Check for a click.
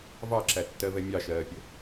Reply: present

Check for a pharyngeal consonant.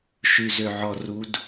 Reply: present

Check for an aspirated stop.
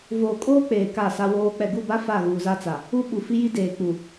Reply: absent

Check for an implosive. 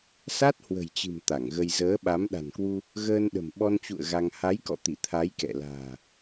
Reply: present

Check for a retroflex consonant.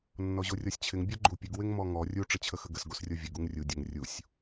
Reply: present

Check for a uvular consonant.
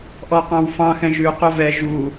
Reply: present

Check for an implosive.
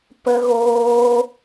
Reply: absent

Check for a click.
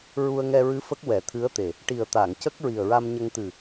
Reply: absent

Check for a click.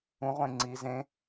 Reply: present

